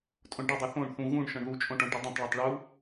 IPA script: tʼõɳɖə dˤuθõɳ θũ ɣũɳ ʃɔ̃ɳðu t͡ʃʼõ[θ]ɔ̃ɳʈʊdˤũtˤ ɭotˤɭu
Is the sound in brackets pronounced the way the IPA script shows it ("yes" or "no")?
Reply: no